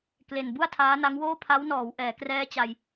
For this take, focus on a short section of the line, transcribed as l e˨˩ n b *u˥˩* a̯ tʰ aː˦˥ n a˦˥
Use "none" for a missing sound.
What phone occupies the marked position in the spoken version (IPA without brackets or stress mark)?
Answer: u˥˩